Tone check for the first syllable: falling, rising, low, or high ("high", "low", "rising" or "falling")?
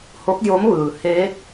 rising